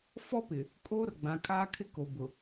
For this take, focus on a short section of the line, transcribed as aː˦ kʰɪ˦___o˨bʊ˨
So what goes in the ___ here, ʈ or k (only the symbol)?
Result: k